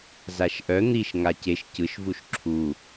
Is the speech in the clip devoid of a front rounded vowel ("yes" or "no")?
no